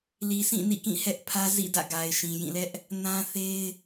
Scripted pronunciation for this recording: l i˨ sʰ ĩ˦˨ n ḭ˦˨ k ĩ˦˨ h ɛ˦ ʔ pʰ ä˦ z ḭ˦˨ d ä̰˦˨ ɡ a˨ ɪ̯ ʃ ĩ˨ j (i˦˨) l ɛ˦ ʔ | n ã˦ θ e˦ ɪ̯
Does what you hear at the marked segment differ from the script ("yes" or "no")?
yes